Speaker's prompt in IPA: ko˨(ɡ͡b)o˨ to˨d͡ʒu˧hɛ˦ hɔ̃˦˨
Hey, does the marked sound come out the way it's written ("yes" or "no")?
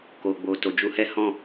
yes